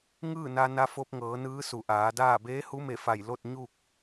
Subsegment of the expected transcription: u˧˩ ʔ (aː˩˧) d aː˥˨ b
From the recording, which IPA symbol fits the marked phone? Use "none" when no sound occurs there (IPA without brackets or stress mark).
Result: aː˩˧